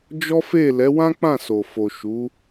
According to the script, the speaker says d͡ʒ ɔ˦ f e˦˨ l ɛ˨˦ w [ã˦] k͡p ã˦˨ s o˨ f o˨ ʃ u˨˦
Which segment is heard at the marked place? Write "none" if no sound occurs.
ã˦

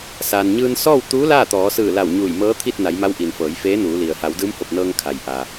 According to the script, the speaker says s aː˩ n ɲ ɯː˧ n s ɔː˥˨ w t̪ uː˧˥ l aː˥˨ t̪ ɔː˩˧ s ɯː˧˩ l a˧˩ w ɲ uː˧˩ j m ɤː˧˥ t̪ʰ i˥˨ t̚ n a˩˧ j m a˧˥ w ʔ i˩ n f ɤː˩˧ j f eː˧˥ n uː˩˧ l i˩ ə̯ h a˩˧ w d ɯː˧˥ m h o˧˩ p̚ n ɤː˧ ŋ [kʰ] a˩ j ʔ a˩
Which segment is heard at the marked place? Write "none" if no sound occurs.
kʰ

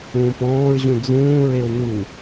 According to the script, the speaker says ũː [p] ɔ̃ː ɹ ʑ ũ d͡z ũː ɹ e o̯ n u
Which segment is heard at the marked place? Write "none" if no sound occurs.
p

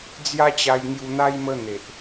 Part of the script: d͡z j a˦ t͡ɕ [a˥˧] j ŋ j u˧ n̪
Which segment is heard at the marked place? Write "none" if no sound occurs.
a˧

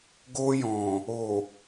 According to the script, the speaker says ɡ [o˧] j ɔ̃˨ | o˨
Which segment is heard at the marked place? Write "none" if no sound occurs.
o˧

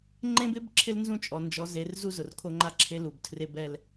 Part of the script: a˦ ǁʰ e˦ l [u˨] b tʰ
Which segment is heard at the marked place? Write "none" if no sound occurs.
u˨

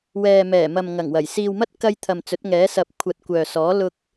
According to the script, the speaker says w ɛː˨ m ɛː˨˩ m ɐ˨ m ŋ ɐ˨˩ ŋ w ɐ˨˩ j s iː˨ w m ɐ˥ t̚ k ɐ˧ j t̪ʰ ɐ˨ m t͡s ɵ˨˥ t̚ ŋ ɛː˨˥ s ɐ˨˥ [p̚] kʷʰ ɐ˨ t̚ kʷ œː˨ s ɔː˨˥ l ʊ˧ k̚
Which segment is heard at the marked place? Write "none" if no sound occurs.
p̚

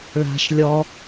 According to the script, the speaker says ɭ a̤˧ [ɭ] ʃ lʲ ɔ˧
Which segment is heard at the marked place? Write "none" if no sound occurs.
none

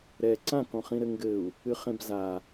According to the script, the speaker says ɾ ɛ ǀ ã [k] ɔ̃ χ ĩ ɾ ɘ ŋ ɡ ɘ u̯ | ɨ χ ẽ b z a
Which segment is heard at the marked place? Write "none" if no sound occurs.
k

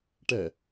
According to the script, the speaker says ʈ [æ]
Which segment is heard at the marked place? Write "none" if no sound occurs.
ɛ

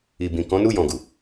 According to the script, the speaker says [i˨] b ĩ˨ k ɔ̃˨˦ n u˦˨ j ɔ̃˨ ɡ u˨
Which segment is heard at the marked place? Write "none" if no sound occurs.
i˨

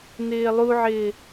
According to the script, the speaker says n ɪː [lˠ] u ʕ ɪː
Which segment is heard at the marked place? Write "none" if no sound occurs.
lˠ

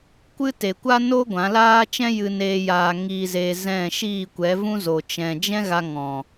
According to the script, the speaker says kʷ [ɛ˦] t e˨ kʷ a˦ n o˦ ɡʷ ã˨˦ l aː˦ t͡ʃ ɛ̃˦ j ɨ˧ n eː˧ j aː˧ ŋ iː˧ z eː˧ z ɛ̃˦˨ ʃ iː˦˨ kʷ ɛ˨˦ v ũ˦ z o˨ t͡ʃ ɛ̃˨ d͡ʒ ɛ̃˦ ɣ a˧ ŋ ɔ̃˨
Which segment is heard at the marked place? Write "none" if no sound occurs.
ɨ˦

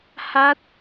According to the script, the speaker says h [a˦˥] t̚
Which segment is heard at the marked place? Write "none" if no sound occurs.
a˦˥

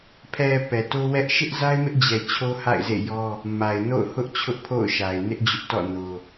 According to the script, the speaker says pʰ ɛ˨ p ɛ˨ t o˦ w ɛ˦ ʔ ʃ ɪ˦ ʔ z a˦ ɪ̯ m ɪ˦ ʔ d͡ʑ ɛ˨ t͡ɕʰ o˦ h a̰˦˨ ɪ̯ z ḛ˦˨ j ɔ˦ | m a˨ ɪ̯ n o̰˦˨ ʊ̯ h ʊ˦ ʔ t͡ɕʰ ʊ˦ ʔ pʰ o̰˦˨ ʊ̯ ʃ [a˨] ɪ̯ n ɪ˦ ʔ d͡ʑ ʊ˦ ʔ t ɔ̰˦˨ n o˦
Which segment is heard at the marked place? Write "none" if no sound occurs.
a˨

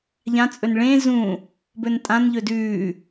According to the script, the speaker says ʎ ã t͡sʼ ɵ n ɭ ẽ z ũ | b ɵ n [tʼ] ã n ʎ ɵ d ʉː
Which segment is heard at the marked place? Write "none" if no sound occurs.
tʼ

